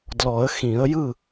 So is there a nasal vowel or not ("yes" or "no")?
yes